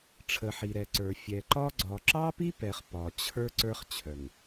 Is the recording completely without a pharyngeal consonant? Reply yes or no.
no